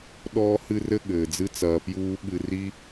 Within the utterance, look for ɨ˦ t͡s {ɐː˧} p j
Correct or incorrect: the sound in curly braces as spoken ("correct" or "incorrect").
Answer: correct